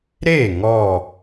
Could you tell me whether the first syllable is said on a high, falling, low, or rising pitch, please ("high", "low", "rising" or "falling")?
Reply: falling